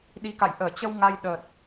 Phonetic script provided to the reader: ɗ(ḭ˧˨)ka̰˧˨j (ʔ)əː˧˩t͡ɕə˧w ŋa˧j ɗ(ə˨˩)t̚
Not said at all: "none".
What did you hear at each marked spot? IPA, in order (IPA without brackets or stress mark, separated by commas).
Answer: i˨˦, ʔ, əː˨˩